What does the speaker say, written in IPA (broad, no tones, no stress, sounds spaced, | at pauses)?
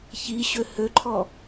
ç i ɕ ø h ø ǃʰ ɔ